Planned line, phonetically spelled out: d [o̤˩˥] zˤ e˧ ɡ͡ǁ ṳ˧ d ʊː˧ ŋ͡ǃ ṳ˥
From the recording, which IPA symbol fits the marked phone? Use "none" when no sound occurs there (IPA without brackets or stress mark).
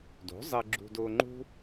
o̤˩˥